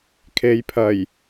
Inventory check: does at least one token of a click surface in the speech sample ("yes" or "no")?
no